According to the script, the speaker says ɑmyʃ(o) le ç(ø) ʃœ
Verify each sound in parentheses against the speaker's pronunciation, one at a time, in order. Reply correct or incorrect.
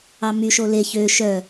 correct, correct

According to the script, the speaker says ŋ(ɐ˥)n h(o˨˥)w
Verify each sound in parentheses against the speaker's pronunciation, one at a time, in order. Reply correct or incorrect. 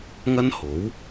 correct, correct

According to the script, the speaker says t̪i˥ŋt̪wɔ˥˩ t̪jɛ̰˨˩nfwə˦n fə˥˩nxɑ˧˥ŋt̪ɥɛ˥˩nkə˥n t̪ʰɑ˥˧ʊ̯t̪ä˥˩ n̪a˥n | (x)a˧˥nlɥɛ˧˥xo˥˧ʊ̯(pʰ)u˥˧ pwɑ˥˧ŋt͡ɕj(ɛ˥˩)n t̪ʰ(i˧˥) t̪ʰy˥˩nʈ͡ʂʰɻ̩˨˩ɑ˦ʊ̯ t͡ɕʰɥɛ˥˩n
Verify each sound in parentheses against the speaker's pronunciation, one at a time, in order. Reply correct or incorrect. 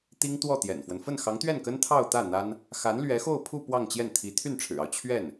correct, correct, correct, correct

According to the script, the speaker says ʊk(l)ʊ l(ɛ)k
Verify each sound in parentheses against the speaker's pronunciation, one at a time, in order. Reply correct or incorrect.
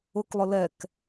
incorrect, correct

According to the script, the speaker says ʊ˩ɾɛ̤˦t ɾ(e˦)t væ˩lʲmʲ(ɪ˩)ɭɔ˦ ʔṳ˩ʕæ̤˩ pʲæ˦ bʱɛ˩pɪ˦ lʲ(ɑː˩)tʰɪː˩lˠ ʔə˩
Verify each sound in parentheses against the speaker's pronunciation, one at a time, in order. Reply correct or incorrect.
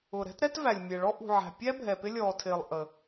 incorrect, incorrect, incorrect

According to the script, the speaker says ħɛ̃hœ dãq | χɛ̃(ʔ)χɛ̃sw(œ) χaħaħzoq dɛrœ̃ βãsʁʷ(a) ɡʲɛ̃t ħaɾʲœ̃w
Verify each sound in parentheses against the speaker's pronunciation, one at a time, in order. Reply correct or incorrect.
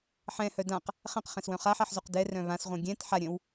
incorrect, incorrect, incorrect

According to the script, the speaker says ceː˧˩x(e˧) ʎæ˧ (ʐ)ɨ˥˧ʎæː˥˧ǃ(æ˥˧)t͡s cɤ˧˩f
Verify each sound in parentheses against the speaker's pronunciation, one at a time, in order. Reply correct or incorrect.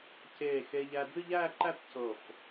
correct, incorrect, correct

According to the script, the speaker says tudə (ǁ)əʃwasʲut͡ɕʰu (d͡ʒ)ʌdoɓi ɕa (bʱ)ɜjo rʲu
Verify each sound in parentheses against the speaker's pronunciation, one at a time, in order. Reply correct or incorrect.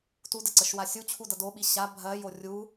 incorrect, incorrect, correct

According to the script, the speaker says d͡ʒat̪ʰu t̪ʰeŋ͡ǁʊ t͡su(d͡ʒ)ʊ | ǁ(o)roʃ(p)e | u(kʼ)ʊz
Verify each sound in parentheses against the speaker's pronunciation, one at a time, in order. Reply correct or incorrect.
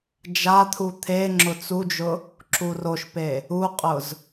correct, incorrect, correct, incorrect

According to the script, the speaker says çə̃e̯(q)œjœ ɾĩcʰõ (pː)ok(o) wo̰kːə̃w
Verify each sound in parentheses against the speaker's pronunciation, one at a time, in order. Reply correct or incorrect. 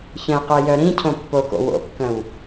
correct, correct, incorrect

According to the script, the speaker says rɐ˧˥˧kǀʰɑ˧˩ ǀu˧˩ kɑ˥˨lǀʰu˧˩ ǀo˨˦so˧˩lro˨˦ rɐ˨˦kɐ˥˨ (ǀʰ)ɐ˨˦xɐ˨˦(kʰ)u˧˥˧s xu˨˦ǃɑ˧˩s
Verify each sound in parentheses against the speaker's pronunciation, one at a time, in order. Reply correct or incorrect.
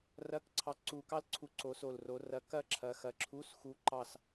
incorrect, incorrect

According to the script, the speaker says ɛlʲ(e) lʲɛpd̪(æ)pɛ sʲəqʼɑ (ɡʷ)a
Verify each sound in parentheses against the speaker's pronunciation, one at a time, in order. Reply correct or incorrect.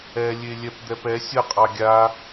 correct, incorrect, incorrect

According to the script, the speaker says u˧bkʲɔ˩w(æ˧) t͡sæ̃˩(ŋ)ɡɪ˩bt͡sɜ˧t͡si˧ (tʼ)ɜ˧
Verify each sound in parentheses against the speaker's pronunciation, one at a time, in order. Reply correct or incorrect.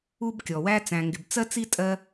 correct, correct, correct

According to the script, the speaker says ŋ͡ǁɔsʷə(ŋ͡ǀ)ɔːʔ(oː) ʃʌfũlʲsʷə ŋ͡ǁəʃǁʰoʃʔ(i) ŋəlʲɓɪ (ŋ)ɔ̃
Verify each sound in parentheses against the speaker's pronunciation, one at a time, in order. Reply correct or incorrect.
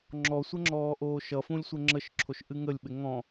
incorrect, correct, incorrect, correct

